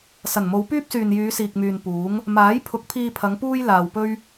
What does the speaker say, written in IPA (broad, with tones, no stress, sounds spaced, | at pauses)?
s ɐ˨˩ n m o˨˧ w p yː˥ p̚ s yː˨ n j yː˨˧ s iː˨ k̚ m yː˨ n p uː˨˥ ŋ | m aː˨˥ j pʰ ʊ˨˥ k̚ pʰ iː˧ pʰ ɐ˨˧ ŋ p uː˥ j l aː˨ w p ɵ˥ ɥ